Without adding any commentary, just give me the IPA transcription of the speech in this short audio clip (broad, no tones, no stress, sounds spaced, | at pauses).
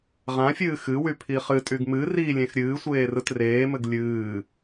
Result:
ʁ ã fʲ ɨː x ɨ w y pʰ i χ ɨ tʼ y ɡ m ɨ r i lʲ ẽ x ɾʲ ɨː sʷ eː r ɯ t r eː m ɘ ɡ lʲ ɨː